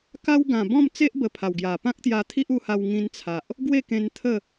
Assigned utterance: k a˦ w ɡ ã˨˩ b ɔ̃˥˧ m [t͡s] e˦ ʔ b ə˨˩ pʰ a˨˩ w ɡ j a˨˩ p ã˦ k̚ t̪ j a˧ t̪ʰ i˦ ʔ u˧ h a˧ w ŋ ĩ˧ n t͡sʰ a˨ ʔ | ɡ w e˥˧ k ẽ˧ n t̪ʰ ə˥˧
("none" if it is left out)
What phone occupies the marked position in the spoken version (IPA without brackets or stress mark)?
t͡s